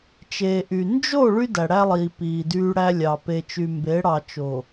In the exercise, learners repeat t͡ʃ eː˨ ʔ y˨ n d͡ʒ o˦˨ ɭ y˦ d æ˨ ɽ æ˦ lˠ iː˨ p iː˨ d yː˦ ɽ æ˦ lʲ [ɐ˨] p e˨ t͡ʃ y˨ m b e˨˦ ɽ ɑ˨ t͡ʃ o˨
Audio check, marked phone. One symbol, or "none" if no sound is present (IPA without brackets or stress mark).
ɑ˨